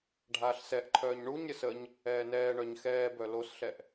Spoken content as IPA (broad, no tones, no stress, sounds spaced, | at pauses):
ɖʱ aː ɬ s ɛ ʔ ǃʰ œː ɲ ɳ u ɲ ɾʲ ə s ə ɲ | ɛː n ɛː ɳ œ ɲ x ɛː b œ l o s ɬ ɛ ʔ